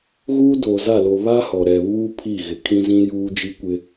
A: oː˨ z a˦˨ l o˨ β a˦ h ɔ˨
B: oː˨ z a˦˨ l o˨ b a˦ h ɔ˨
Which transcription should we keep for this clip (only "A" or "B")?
A